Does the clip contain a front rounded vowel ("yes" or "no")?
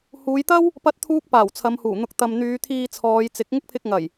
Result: yes